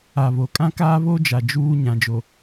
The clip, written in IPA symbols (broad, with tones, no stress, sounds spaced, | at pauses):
a˨ β o˨ kʼ ã˦ k aː˦ β o˦ d͡ʒ a˨ d͡ʒ uː˦ ɲ ã˨ d͡ʒ o˨